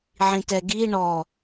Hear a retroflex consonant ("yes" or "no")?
yes